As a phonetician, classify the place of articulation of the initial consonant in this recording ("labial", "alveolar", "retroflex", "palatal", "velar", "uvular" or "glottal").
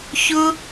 palatal